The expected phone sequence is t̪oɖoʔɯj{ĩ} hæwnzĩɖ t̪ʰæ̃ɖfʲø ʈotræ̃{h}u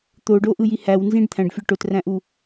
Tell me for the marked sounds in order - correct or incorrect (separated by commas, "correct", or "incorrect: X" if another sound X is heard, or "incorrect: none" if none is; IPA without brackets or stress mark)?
incorrect: i, incorrect: ʔ